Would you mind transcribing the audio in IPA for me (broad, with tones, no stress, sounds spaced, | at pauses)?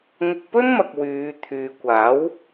ŋ ʊ˧ k̚ p ɵ˥ n m ɐ˨ k̚ w yː˨˧ t̪ʰ yː˨ kʷ aː˨˥ w